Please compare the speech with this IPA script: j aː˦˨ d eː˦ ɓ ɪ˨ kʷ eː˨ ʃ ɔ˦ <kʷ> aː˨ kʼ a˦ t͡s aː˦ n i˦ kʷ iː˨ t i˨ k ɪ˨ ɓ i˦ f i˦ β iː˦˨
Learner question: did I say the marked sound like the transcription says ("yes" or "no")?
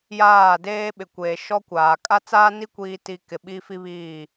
yes